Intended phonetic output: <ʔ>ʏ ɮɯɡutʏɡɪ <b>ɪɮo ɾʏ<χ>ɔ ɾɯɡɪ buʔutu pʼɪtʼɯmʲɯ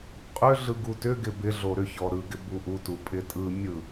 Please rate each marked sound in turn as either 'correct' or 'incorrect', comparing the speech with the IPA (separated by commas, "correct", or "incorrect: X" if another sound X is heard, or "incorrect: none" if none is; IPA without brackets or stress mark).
incorrect: qʼ, correct, incorrect: ç